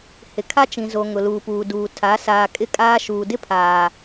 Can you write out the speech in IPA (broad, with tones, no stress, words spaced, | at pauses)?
hɪ˨kʰa˦ t͡ʃĩ˨zo˨ ŋʊ˨luː˨puː˨duː˨ tʰa˨˦ saː˨kʼɪ˦ kʼaː˦ ʃuː˨ dɪ˦pʰaː˨